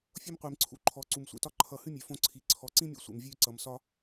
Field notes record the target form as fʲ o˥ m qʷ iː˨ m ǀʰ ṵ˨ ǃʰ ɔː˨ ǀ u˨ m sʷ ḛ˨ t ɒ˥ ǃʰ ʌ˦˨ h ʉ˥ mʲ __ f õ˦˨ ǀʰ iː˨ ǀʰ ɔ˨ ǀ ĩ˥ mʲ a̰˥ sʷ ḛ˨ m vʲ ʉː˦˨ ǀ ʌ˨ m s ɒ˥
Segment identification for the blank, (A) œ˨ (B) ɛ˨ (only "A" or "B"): A